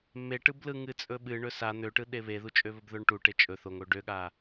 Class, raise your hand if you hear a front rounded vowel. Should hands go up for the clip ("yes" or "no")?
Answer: yes